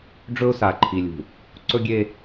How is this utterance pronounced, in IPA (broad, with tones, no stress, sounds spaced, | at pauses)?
ɖ͡ʐ ɵ˦ ʊ̯ s a˨ ǃʰ i˨ lʲ ṳ˨ | ǀ ɵ˦ ɡʲ e˦